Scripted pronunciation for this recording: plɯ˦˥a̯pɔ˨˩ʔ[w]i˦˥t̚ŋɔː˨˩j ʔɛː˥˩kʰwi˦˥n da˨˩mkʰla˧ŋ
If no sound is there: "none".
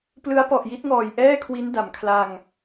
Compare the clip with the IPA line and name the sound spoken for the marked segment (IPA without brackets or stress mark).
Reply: j